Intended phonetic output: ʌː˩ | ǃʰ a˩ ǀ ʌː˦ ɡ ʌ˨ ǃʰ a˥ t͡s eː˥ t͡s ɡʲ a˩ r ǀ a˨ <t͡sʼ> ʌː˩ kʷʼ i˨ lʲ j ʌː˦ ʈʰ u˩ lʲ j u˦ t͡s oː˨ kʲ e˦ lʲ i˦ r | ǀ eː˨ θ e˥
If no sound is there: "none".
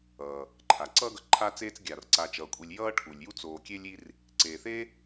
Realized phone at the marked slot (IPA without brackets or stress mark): t͡ʃ